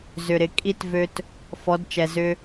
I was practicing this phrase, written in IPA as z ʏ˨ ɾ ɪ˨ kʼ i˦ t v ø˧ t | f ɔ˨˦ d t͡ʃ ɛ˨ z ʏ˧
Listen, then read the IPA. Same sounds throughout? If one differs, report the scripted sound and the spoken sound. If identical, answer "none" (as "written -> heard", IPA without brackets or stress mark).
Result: none